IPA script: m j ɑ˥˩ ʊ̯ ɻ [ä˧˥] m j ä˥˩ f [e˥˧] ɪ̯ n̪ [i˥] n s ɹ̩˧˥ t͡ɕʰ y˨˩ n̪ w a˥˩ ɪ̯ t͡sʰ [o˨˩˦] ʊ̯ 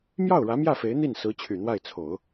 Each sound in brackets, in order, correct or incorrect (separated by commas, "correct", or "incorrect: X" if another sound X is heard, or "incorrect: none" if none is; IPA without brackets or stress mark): correct, incorrect: e˧˥, incorrect: i˥˩, correct